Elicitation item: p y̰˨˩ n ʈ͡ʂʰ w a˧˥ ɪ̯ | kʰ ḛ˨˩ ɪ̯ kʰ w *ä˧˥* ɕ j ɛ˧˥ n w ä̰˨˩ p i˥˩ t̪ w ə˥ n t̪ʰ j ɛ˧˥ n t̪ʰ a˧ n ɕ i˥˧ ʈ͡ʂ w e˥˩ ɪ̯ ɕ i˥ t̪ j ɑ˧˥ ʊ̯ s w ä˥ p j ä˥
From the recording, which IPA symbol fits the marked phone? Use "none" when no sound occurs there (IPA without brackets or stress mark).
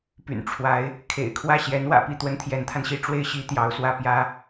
ä˥˩